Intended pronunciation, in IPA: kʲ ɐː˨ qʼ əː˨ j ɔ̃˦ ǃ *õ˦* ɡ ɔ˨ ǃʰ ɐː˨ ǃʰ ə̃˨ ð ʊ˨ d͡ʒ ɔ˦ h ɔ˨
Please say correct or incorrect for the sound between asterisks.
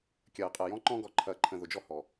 incorrect